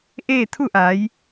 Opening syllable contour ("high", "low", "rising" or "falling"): falling